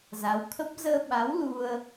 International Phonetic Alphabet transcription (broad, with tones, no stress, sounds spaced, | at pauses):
z a˨˦ w t̪ʰ ə˦˥ p̚ z əː˧ ɓ a˨˦ w l u˧ ə̯